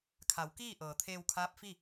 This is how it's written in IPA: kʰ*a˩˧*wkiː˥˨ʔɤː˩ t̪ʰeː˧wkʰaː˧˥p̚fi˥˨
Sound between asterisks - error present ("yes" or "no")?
no